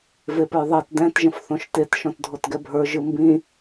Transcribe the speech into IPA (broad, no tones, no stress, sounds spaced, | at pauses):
v e p ə˞ ðˤ ɛ t d ɛ̃ t ʒ ə̃ f θ õ ʃ t e t ʃ ɔ̃ t dʱ o t ɡ ɛ bʱ ə˞ ʒ ɯ m b ĩ